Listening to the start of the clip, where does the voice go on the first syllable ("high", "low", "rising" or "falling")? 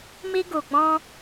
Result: high